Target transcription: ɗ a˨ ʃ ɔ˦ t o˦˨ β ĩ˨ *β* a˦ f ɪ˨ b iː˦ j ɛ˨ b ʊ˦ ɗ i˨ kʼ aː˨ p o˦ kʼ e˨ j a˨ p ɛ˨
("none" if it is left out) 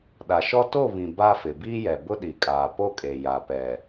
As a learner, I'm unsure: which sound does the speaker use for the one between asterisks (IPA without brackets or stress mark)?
b